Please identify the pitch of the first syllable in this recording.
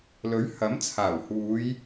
rising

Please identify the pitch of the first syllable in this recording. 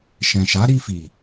low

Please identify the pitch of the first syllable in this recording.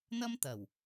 high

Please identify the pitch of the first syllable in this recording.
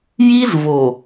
high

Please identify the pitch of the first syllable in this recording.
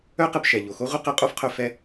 high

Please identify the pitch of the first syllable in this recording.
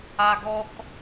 high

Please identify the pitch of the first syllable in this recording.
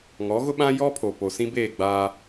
rising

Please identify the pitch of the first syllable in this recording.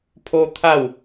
high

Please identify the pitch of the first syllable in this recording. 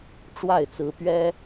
falling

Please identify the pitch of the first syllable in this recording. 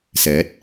rising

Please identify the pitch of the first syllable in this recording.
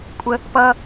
high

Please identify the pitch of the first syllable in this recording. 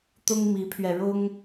high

